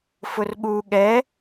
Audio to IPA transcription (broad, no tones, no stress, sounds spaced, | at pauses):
f ʊ r ɠ u ɠ ɛ